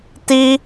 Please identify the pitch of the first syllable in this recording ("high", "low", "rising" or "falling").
high